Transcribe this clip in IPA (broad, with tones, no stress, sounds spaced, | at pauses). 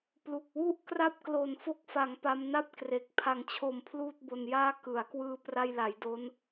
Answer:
p l u˨˩ k̚ w u˥˩ ʔ k r a˥˩ p̚ k l o˨˩ n f o˦˥ k̚ f a˩˦ ŋ p a˦˥ m n a˥˩ p̚ k r e˨˩ k̚ pʰ a˩˦ ŋ t͡ɕʰ o˨˩ m pʰ l uː˥˩ t̚ b o˧ n j aː˥˩ k ɯ˩˦ a̯ k w ɯː˧ p r a˧ j l a˩˦ j d o˦˥ n